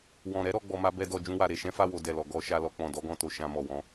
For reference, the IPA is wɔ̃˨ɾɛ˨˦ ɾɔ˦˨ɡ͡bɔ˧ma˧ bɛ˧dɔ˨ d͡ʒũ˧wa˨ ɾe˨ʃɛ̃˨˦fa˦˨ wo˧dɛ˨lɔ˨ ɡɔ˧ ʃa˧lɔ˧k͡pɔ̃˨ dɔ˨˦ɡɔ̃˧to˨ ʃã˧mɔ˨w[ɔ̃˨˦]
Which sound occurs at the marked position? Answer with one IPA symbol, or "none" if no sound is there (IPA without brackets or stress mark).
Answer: ɔ̃˨˦